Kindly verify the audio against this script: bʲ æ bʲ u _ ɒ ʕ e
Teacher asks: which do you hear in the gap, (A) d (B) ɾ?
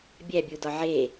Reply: A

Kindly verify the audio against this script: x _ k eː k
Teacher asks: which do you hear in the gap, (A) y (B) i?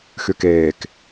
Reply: A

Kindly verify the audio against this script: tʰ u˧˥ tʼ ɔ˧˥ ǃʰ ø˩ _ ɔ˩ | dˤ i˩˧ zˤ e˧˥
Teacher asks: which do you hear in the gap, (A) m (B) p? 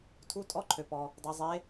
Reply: B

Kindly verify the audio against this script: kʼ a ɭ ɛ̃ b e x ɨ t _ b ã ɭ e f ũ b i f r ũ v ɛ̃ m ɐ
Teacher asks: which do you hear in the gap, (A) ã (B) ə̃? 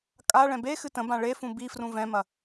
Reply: B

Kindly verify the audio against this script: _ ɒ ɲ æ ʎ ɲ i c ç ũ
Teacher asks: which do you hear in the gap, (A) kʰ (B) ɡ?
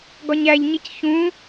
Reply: B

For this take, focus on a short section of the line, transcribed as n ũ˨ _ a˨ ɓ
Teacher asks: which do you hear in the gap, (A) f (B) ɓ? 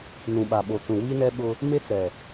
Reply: B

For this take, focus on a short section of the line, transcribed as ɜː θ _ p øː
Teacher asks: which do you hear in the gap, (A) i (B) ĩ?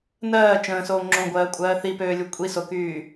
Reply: A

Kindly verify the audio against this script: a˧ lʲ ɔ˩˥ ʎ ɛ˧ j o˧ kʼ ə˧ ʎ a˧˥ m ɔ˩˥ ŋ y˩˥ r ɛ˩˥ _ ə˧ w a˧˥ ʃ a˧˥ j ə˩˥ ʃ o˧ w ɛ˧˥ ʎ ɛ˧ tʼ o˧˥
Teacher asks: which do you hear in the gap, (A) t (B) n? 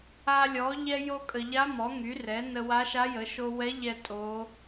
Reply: B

